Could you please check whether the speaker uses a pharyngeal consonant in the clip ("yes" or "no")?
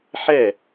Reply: yes